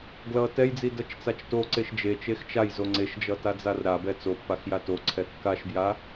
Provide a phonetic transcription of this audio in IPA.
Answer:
ɡlʌ tɛjd͡zidʌt͡ʃt͡sat͡ʃ toǀeʃ d͡ʒet͡ʃex t͡ʃajzo ŋ͡ǀeʃd͡ʒʌtad͡zar ɾabɛ t͡sopːaxja toǀʰɛ kːaʃbja

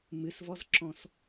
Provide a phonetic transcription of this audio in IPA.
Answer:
mɨsvɔzǁɔ̃s

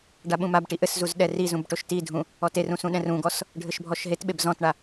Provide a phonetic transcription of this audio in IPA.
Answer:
ɖaɓũmabʈi ʔɘszuz ɗɛrizũb ʈoʃtidʱũ | ɔterũ sũɗɛ̃rũɡɔs | ɖʱɘʃbʱɔʃɦetɓeb zɔ̃tɳa

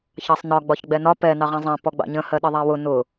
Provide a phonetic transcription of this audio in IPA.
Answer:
çɑsˤnɒ ɡ͡bɒçɡ͡bɛnɒ pɛ nɑʁɛ̃zˤɛ̃ pɔɡ͡bɑ̰ɲə̃ hɜɗəðˤæwʊ nʊ

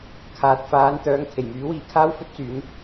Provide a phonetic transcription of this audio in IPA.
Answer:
kʰaː˨t̚ faː˨˧nt̪œː˨˧ŋ kʰe˨˩jmyː˨˥wiː˨ kʰaː˥wfɵ˥t̚ t͡syː˨˥n

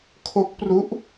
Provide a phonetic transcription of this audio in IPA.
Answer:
kʰo˦˥k̚pru˦˥ʔ

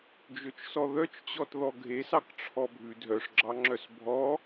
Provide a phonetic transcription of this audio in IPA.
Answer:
d͡ʒɵt͡ʃsɔðœt͡ʃt͡ɕɔt ðɔɡʱesɑk ʈ͡ʂʰɔbʱʉ dʱœʂɡ͡ǁɑŋ͡ǁœs bʱɔ

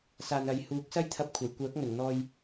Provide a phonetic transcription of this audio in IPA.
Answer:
saː˨nɐ˨jhuː˨˥k̚ sɐ˥jt̪ʰɐ˧p̚kʷʰɐ˨˩j kʷœː˨˥k̚ŋɵ˨˩nn̪ɔː˧j

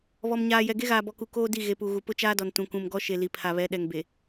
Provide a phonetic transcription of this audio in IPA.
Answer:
βɔ˨mɲaː˨jɛ˨ ɡe˦ɣaː˨bɔ˨ku˨ koː˦di˦˨ ɣe˨pu˨ɣu˨ pʊ˦t͡ʃaː˦dɔ˨n tũ˨kũ˨m ɡɔ˦ʃe˨ li˨pʰa˨βɛ˨˦ ɗɛ˨ŋ be˨

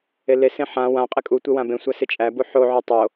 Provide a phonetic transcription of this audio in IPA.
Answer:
elesẽ ħã wã qʼɪkʼutʷe wãbẽsʷæ sɪt͡ʃʼæbu ħoʕo tˤo

